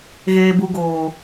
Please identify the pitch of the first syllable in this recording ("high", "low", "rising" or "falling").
low